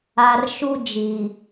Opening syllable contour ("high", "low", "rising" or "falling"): low